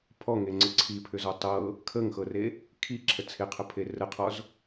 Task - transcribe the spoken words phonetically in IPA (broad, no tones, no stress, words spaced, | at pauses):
pʰɔŋeŋ͡ǀɘ ǀʰipʰʏzɔ tˤɤ | kʰəŋxɤre | kʰiǁʰə t͡sʰeqʰəpʰe rəqʰɔz